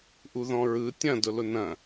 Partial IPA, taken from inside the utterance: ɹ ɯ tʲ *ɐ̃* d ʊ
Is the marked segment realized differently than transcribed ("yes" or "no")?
no